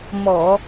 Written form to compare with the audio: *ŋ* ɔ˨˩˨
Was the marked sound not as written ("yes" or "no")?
yes